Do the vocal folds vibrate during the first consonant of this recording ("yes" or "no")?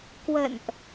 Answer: no